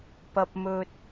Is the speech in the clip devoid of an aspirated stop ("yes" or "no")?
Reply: yes